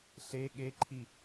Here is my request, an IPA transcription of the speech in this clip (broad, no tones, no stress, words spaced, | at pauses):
ɬe ɠeǃʰi